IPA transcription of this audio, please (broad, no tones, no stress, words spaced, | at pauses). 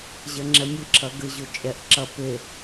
ʑɐŋ͡ǁɛmʲɘǁʰɐ ɡɘʑo t͡ʃʼɛʔǁɐ pe